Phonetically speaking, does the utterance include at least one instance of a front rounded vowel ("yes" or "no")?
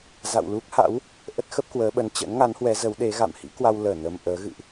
no